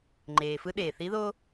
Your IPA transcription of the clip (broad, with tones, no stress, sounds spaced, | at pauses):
ŋ͡ǃ eː˩ f ɯ˧˥ ɗ eː˩ θ i˧˥ ð o˥